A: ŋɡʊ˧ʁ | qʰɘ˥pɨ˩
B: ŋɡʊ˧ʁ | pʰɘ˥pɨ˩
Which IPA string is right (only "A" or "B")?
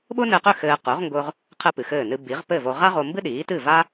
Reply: A